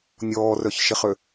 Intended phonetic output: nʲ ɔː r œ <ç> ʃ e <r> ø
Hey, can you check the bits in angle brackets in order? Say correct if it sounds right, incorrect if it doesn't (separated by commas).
correct, incorrect